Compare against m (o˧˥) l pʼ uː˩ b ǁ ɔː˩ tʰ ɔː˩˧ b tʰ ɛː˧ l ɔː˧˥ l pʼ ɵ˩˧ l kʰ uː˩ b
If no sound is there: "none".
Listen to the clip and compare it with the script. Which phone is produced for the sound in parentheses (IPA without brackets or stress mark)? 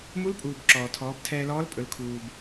u˧˥